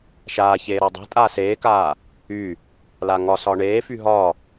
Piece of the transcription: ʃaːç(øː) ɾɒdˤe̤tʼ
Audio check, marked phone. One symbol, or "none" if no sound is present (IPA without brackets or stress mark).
eː